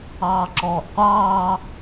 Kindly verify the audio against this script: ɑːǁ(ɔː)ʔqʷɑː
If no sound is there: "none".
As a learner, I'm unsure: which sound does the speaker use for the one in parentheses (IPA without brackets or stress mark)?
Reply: ɔː